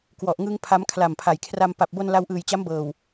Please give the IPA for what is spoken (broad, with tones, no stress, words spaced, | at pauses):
kwɔ˨˩ʔŋɯ˧ŋ pʰa˦˥mkʰla˨˩mpʰa˨˩jkʰra˧m pa˨˩p̚bo˧n la˧wʔɯː˨˩jt͡ɕa˦˥mbɤː˨˩w